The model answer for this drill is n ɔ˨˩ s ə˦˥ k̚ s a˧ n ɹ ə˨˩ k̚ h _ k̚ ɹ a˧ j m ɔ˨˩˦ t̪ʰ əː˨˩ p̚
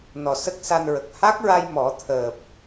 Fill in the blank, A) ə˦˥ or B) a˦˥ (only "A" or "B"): B